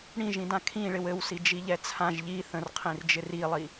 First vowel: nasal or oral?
nasal